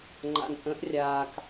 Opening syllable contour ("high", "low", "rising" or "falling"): low